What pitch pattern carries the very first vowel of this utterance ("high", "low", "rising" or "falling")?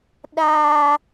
low